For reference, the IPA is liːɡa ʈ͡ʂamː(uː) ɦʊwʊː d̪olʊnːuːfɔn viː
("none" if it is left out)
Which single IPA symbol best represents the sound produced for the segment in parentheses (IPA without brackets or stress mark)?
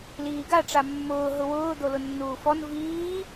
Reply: ʊː